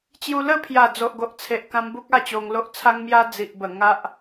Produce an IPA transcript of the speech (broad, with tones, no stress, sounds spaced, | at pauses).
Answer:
t͡ɕ j u˧ l ə˥˧ pʰ j a˨˩ d͡z o˨ ʔ ɡ o˨ ʔ t͡sʰ e˨ ʔ k ã˧ m b u˦ k̚ a˥˧ t͡ɕ o˧ ŋ l o˦ ʔ t͡sʰ a˦ ŋ m j a˦ d͡z i˨ ʔ b ə˨˩ ŋ a˦ ʔ